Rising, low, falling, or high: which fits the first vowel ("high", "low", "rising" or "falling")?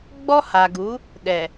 high